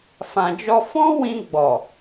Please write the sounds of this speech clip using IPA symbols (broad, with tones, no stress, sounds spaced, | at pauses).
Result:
f ã˧ d͡ʒ ɔ˦ f ɔ̃˦ w ĩ˧ ɡ͡b ɔ˨